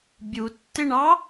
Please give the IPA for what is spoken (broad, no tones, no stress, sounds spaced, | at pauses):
bʲ u tː ɪ ɳ ɑ